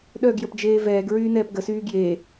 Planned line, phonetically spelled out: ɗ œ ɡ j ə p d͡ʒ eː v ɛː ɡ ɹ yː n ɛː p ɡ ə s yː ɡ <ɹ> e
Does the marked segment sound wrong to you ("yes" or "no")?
yes